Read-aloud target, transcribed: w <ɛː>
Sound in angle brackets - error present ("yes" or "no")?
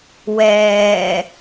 no